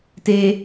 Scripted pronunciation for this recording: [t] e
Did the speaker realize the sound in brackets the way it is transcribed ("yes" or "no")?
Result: yes